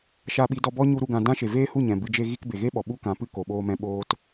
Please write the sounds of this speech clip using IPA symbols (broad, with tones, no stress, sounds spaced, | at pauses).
ʃ a˧ ɓ i˨˦ d ɔ˧ b ɔ˦ ɲ u˦ ɾ u˧ ɡ ã˧ d ã˦ ʃ e˨ v eː˦ h u˦˨ ɲ ɛ̃˨ b ɨ˧ d͡ʒ e˦ ɣ i˦ k b e˨ ɣ e˦ ɓ ɔ˨ ɓ u˦ k ã˨˦ p ɨ˧ k o˨ ɓ oː˧ m ɛ̃˧ ɓ oː˦ t